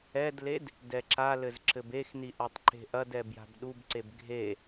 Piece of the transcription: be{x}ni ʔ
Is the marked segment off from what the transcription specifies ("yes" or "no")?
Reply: no